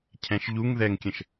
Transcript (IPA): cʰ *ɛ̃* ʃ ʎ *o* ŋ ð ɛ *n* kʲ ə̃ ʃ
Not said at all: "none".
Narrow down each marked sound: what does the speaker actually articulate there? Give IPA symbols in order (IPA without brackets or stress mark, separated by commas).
ɛ̃, u, ŋ